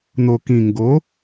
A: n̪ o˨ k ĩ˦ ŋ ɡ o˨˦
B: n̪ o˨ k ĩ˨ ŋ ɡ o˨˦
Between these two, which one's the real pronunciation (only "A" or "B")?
B